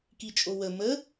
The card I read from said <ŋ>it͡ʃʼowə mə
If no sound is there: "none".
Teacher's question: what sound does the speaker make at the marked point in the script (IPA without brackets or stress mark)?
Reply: k